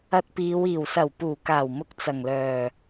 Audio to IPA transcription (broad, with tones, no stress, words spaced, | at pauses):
ɐ˧t̚piː˨˧w iː˨˩wsɐ˨˩w puː˨˩kaː˨˩wmʊ˨k̚ t͡sɐ˨˩ŋlœː˨˩